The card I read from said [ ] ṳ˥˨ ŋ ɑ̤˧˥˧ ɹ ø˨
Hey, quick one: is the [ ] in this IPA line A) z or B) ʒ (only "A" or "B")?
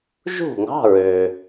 B